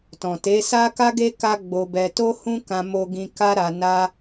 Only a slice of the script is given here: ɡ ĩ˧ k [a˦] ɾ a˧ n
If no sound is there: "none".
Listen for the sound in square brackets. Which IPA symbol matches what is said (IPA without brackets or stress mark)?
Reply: a˦